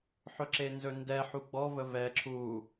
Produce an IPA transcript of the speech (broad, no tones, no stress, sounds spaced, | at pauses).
ħ ɵ ǁ e n z ɵ n d ɛ ħ u ɡ͡b ɔ v ə v ɛ ǁʰ u